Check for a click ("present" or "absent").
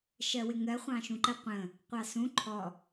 present